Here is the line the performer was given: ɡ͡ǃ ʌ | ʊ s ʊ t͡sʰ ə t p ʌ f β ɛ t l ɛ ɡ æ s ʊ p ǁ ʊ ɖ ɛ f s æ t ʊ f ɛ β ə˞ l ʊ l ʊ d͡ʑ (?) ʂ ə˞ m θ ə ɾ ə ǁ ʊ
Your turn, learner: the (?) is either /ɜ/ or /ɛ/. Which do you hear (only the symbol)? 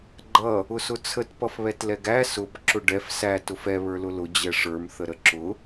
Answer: ɛ